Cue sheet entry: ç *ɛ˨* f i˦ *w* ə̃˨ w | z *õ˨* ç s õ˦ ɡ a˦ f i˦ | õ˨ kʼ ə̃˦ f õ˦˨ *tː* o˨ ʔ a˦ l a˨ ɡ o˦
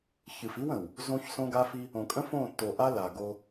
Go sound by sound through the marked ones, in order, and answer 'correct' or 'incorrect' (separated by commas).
incorrect, correct, incorrect, correct